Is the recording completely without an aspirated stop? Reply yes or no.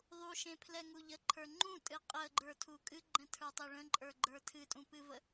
no